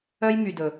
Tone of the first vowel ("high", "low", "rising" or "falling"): high